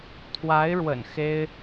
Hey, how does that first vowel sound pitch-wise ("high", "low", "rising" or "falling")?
rising